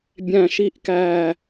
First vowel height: low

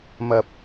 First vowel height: low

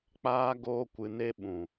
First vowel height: low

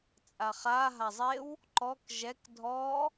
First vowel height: low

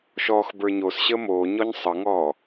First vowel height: mid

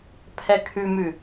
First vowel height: mid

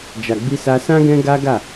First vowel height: low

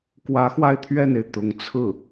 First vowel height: low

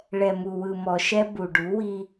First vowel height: mid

